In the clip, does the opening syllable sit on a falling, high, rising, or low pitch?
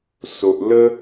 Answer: low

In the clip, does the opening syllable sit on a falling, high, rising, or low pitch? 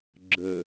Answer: low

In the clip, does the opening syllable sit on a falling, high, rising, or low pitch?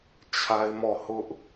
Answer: high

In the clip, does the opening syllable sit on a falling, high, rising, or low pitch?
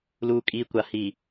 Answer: low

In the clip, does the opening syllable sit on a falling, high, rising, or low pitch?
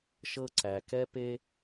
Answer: high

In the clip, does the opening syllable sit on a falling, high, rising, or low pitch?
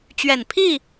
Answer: low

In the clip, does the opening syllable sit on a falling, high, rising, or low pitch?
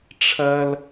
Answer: high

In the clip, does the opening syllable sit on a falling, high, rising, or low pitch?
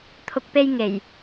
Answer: low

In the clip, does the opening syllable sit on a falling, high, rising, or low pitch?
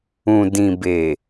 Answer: low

